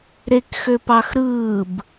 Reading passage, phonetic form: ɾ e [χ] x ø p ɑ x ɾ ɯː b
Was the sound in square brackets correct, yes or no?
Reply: no